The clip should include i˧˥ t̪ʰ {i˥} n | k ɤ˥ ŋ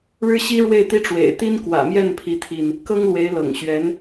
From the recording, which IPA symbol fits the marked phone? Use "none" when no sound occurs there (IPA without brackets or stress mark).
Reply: i˧